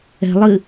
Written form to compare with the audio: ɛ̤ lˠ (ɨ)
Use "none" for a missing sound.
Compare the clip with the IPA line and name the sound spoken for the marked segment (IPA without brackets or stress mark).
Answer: ɨ